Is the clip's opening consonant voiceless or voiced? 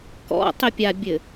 voiceless